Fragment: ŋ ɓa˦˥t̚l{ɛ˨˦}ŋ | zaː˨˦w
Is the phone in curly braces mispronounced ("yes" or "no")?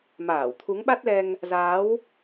yes